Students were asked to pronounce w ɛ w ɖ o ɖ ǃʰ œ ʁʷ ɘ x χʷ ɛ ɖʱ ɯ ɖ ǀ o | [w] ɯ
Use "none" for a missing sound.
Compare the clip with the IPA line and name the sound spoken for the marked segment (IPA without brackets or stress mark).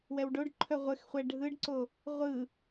ʁʷ